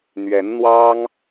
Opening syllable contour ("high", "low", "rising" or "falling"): rising